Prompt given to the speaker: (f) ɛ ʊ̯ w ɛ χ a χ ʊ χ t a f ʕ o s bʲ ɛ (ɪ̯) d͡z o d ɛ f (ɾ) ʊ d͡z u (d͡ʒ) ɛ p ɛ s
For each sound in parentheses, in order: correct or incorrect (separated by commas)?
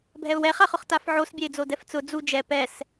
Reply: incorrect, correct, incorrect, correct